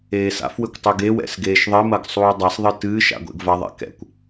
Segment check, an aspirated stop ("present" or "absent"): absent